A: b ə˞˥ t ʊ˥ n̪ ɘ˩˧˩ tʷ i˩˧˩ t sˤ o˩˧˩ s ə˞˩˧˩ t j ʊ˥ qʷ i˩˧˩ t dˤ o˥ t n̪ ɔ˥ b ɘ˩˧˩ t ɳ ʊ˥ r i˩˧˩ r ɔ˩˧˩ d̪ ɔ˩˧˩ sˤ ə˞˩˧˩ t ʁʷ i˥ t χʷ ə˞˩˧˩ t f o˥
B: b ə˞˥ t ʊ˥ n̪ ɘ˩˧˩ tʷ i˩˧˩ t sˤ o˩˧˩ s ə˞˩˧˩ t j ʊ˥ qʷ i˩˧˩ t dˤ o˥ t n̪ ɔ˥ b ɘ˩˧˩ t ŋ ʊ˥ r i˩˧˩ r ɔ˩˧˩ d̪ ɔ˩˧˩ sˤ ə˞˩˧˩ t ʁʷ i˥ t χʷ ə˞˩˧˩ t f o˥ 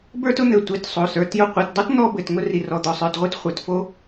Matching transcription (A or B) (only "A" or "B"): B